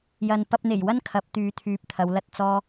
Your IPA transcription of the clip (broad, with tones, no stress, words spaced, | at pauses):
jɐ˨npɐ˧p̚n̪e˨˩jwɐ˥n kʰɐ˨˥p̚t̪yː˨˧t̪ʰyː˨p̚ t̪ʰɐ˨˧wlɐ˥t̚ t͡sɔː˥